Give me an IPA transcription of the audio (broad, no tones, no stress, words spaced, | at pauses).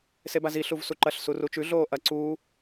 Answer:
sebazi ɬuvsuǃɐɬ surut͡ʃʉ ɮoːʔɐ ǀuː